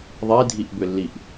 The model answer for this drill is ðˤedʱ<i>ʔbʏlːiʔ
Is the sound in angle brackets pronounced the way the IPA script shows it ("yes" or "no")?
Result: yes